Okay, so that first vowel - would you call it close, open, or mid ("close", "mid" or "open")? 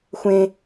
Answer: mid